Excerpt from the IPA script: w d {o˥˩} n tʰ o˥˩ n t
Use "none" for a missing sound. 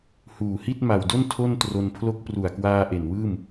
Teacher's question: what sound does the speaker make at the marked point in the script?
o˥˩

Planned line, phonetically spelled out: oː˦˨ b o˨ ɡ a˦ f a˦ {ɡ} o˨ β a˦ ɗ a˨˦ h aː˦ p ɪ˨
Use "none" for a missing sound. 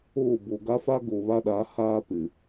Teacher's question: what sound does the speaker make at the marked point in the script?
ɡ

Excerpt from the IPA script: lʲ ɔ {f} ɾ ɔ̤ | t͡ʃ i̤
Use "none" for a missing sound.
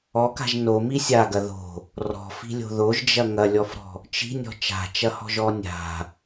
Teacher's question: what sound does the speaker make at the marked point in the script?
f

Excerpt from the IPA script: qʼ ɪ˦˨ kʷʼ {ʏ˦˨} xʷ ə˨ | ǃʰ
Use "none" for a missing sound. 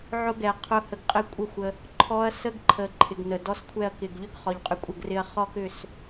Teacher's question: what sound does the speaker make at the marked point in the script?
ə˦˨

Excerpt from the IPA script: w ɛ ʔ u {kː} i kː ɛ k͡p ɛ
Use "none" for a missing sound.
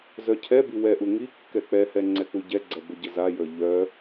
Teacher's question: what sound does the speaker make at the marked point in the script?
ŋ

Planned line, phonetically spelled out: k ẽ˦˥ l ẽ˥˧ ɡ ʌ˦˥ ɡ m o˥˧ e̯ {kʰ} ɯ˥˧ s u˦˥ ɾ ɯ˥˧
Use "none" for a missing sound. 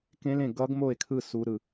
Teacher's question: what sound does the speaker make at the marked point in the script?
kʰ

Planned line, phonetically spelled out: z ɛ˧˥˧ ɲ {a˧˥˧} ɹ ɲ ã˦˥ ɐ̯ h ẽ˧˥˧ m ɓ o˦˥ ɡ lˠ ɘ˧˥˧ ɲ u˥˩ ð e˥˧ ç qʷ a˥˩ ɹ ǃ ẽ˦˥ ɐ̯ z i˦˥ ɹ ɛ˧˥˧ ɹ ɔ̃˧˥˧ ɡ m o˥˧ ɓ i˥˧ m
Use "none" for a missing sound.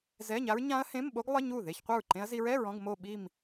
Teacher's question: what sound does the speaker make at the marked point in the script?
a˦˥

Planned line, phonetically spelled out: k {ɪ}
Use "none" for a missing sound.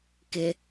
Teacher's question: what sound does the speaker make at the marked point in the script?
ɪ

